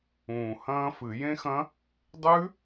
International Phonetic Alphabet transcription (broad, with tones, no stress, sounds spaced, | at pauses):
ũː˨˩ h ɐ̃ː˦˥ f ɨ˧˩˧ j ẽ˦˥ x ɐ̃˦˥ | dˤ ʉ˦˥